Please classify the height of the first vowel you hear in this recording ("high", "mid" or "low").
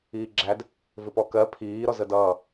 high